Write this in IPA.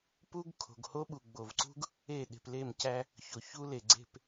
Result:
p u˦ ɡ kʰ o̤˨ ɡ h o˦ ɓ u˨ ɡ͡b o˨ v ǀ ṳ˦ ɡ | e˦˨ ɗ e̤˨ p l e˦˨ m c æ˦ | ç o˨ ç u˦ l e˨ ɡ͡ǀ e̤˦˨ p

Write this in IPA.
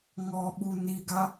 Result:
ŋ ɔ ɓ u n i ɡ a

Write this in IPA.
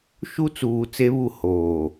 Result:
ʃ u˦ t͡s uː˨ t͡s e˦ β u˦˨ h oː˨

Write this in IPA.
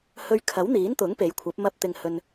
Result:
h ɵ˧ ɥ kʰ ɐ˨˥ w n̪ iː˨˥ n t̪ ʊ˨˥ ŋ p e˨˥ j kʷʰ ɐ˨˥ p̚ m ɐ˧ p̚ t̪ ɪ˨ ŋ h ɵ˨ n

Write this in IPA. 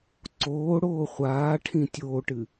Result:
ǀ oː ɽ oː χʷ aː ʈʰ ĩ tʲ oː ʈ ɨ

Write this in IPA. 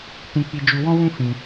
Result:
t ĩ˧ k͡p i˧ d͡ʒ u˧ w ɔ̃˦ w ũ˦ f ĩ˧

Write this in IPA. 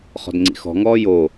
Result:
χ ɔ̤ d ŋ͡ǀ ḭ x ɔ̤ ŋ ɔː j o

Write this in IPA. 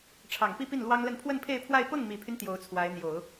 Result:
ʈ͡ʂʰ ɑ˨˩ ŋ p i˥˧ p i˥˩ n l w ɑ˥ ŋ l ə˥˧ n pʰ w ə˥˧ n pʰ e˥˧ ɪ̯ pʰ w a˥˧ ɪ̯ p ɤ˥˩ ŋ m i˨˩ pʰ y˦ n t̪ j o˧˥ ʊ̯ t͡sʰ w a˧˥ ɪ̯ n̪ j o˨˩˦ ʊ̯

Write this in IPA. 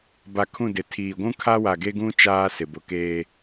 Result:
b a˨ kʰ ũ˦˨ d ɪ˨ tʰ iː˨ ɡʷ ũ˦ kʰ a˦ w a˨ ɡ e˦ ɡ ũ˦ t͡ʃ aː˦ s ɪ˨ b ʊ˨ k eː˦

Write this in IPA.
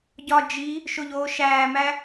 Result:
ɟ ɒ d͡ʒ i | ʃ o ʎ oː ʃ æː m æ

